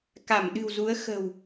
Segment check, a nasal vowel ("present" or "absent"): absent